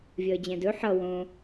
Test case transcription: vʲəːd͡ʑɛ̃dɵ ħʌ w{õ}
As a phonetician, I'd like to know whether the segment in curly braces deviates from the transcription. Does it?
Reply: no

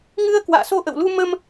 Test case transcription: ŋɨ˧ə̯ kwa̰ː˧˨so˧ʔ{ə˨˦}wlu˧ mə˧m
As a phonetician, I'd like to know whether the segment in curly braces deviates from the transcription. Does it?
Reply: yes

